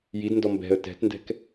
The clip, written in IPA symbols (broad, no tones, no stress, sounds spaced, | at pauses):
j i d n d ɔ m b ɛ̤ ə̯ t ɛ̤ t n d ɛ̤ k